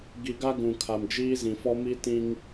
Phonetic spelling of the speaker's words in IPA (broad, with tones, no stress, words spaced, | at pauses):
ɡi˨ɡa˦ ɡũ˨kʰa˨m d͡ʒiː˦zĩ˨fɔ˦ mi˦tĩ˦ŋ